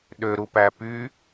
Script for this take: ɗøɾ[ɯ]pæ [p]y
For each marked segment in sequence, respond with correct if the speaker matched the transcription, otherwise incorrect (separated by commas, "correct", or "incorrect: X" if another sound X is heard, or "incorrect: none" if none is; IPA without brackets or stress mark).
incorrect: u, correct